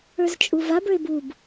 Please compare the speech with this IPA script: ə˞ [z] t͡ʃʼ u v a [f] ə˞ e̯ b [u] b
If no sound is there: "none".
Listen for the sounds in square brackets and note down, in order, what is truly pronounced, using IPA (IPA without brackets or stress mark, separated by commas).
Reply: z, b, u